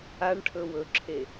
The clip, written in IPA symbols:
a ɳ ʈʰ ɵ w ɵ ǁʰ e

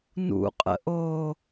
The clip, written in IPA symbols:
n ṵ qʼ ə̰ ʔ o

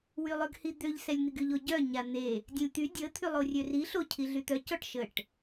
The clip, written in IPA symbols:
w y lˠ ø ɡ h i d̪ ø ʎ s ɛ lʲ n̪ i ɡ y ʎ o ɟ œ ɲ a n̪ e | dʲ ɛ̃ lʲ t̪ y dʲ ə t̪ʰ y lˠ o rʲ ø r i ɬ o cʰ i ɮ y t̪ œ c ɔ ʈ ʃ ə ʈ

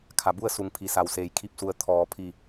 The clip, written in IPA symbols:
kʰ a˩ b u˥˨ ə̯ s u˩˧ ŋ pʰ i˩ s a˩ w s eː˩ j kʰ i˥˨ p̚ s u˧ ə̯ t̪ʰ ɔː˩˧ pʰ i˧˩

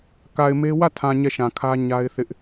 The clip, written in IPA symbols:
k a˨ ɪ̯ m e˦ w ä˦˨ tʰ ã˨ ɲ ɛ˦˨ ʃ ã˨ kʰ ä˦ ɲ a˦ ɪ̯ θ ɪ˦ ʔ

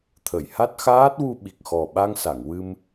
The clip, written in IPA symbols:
t̪ʰ ə˨˩˨ j h a˦˥ t̚ x aː˦˥ t̚ w u˧ ɓ i˨˩ k̚ x ɔ˨˩ ɓ a˧ ŋ s a˨˩˨ ŋ w ɨ˧ m

